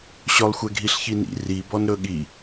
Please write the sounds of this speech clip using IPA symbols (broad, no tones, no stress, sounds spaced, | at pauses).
ɕ ɵ lˠ xʷ ɛ ɡʱ i ɬ ç i n ḭ r i b ɔ n ɾ ɵ ɠ i